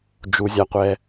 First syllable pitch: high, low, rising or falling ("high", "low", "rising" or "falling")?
low